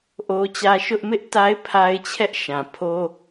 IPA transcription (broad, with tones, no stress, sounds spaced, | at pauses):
ʔ o˦ t͡ɕ ä˦ ʃ ʊ˦ ʔ m ɪ˦ ʔ t a˦ ɪ̯ pʰ a˦ ɪ̯ t͡ɕʰ ɛ˦ ʔ ʃ ã˨ pʰ o˦